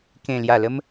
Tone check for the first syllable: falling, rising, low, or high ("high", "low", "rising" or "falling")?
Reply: low